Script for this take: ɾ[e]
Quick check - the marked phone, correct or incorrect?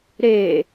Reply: correct